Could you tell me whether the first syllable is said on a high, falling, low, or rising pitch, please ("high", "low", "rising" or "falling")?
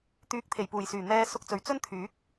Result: rising